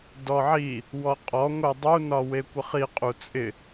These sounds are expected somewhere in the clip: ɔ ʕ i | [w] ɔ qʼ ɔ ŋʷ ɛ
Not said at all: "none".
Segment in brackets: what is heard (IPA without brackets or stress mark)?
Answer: w